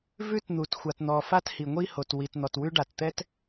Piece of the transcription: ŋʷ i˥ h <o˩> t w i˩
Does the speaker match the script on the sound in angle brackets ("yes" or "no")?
yes